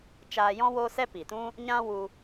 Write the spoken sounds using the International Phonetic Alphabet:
t͡ʃaː˧jɔ̃˦ woː˦sɛ˦pi˨tũ˦ | ɲã˦wu˧

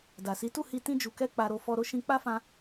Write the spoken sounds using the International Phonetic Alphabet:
da˨si˨˦tu˦˨hi˧ tĩ˧d͡ʒu˨kɛ˧ k͡pa˧ɾo˧ fɔ˧ ɾo˦ ʃĩ˧k͡pa˦fã˧

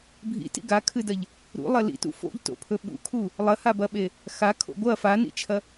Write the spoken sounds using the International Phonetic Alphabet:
bʱḭtḭ ɡakʰɨdɐʎ | ɾṵlˠɐ lḭtṵ fo̰ʎto̰pʰɵ ɓṵkʰu | lˠɐhabɐɓe | xakʰo̰ ɡʷɐ fanḭt͡ʃʰɐ

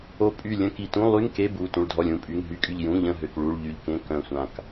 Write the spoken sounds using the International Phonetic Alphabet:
o˧˩ pʼy˧˩ lʲə̃˧˥˧ ki˩˧˩tũ˧˥˧ lˠy˧˥˧ŋ ke˧˥˧bu˩˧˩ tũ˧˩ɭdʱɔ˧˩lʲũ˧˥˧pʼy˩˧˩ŋ ɦy˧˩kʼy˧˩ʎ jũ˩˧˩ʎə̃˧˩ ɦø˧˩k ɭu˩˧˩ɭ ʎy˧˩ʎkẽ˧˥˧ kœ̃˧˩sʷã˧˩k

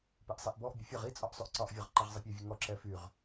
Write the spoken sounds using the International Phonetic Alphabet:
piʔsˤiʔbɔʔ bʲəfʲɒʁ i t͡sʼɒʔsˤyʔǀɒʔ vʲɒʁǃɛʁzˤipʲɛ vʲəŋɔ ǁɛfyʁ

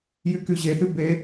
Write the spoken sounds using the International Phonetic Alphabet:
jykyʑeθy be

